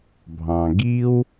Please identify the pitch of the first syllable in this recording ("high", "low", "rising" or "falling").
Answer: low